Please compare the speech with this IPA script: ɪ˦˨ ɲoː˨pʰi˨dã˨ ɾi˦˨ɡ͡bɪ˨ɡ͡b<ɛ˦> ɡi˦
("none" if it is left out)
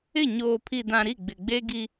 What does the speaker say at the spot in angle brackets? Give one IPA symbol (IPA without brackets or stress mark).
e˦